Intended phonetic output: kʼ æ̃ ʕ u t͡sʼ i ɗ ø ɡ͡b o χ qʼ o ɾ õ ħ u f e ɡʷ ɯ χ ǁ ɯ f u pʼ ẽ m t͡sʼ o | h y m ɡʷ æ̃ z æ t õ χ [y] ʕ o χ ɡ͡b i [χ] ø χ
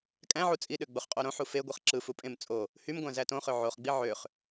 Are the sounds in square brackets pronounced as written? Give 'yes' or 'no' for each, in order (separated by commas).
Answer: no, no